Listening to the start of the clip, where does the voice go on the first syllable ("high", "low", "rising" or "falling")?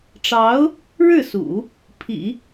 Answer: rising